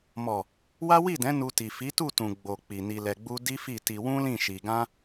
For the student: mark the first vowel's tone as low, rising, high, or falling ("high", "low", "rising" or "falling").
low